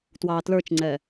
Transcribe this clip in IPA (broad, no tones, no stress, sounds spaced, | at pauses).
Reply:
t w ɑː t l ə˞ t͡ʃ ŋ͡ǀ ɛ